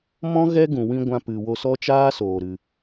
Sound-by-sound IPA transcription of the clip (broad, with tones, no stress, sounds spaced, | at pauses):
m ɔ̃˦ ɣ ɛ˦ ɡ ũ˨ w ĩ˧ ɡʷ ã˧ p ɨ˨ w o˧ s ɔ˦ t͡ʃ aː˦ s oː˨ ɾ ɨ˨